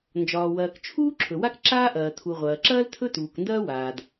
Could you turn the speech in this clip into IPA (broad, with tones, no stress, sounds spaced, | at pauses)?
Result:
n d͡ʒ ɒː˩ w ɐː˩ k t͡ʃʰ uː˥ ǁʰ ɵ˩ w a˥ k ǁ aː˥ ʔ ɐː˩ tʰ u˩ ʁʷ ɐː˩ ǁ ɐː˥ l tʰ ɵ˥ t uː˩ k n d ɐː˥ w aː˩ d